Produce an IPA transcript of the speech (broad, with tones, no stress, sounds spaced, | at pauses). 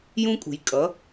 j ũ˦ kʼ ṳ˨ j kʼ ʌ˨˦